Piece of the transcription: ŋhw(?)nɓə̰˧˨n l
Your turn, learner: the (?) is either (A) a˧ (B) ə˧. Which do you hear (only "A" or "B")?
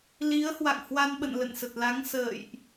A